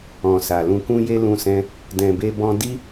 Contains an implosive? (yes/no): no